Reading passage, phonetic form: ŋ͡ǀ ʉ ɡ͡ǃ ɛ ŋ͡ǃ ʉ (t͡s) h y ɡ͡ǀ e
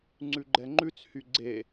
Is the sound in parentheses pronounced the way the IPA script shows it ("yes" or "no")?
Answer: yes